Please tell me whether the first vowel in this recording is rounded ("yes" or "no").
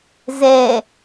no